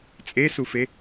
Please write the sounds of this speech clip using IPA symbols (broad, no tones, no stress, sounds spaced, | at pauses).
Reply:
t͡sʼ e s u f e